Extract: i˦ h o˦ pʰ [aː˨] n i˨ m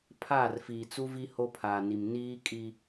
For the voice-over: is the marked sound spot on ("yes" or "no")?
yes